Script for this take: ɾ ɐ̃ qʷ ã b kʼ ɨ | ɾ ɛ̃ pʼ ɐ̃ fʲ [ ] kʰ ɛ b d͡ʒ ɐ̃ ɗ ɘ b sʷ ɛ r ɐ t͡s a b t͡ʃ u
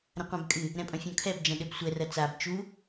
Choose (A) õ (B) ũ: A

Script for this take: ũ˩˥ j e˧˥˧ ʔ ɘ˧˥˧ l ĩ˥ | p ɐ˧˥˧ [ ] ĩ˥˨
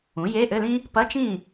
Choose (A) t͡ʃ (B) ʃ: A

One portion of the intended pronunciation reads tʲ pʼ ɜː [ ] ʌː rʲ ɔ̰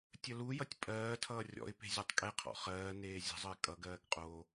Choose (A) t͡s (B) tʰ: B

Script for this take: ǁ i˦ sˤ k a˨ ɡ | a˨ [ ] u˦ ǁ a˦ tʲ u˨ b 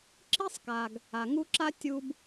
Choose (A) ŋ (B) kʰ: A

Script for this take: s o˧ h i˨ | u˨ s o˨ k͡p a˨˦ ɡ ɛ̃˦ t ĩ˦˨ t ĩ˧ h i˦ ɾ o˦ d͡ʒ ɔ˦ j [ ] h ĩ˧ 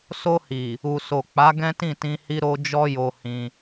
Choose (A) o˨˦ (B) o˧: B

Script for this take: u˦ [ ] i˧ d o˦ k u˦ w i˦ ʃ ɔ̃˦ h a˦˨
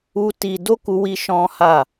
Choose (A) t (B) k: A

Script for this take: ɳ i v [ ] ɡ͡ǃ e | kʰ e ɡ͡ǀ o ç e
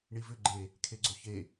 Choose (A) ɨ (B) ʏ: B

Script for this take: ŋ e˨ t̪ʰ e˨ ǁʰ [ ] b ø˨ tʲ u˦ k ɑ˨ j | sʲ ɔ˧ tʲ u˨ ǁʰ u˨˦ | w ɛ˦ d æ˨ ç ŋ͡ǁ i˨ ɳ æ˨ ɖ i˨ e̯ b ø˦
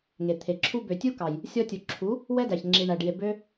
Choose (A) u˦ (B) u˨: A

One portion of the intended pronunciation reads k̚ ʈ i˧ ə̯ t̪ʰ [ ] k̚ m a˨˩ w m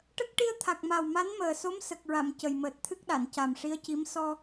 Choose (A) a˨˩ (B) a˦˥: A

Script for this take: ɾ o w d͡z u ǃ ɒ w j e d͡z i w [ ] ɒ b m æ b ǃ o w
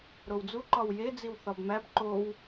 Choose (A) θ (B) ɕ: A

